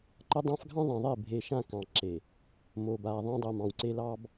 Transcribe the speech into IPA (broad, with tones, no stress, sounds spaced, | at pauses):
ǃ ə˦ dˤ ã˦ f ɡʱ ɑ̃˦ ðˤ ã˨ ðˤ e˦˨ bʱ e˨ ʃ ã˦˨ k ɑ̃˨ ǁ e˨ | m o˨ b a˨ ðˤ ã˦ dˤ o˨ m ɑ̃˨ w ǀ e˦ l ɑ˦ b